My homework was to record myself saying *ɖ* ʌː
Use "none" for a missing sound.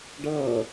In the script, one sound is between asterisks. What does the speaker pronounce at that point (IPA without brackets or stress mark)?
ɖ